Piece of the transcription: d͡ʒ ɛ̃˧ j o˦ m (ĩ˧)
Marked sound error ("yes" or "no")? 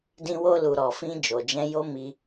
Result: yes